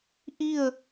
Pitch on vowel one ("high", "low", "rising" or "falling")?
falling